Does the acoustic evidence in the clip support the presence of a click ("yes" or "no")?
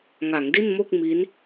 no